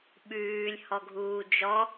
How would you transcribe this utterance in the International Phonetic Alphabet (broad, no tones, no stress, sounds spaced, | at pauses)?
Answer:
ɓ ʉː lʲ h ɔ ɡʱ uː d͡ʒ ɔ